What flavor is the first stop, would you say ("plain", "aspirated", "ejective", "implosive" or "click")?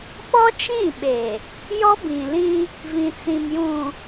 implosive